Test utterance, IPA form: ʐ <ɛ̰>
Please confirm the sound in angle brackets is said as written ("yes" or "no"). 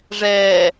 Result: no